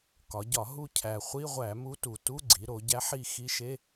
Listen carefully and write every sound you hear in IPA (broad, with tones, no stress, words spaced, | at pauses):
kɒ˩˧ ɟɒ˧˩˧ ɦu˦˨cʰæ˨˩χʷi˧˥˧ʁʷæ˧˩˧ mu˧˥tu˨˩tu˧˥˧ɡ͡ǀi˩˧ ɾo˩˧ɟæ˧˥ħi˦˨ xi˧˥ʃe˧˥˧